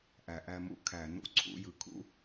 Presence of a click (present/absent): present